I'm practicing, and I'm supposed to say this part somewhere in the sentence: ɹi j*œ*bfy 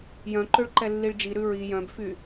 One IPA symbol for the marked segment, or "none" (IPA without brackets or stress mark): œ̃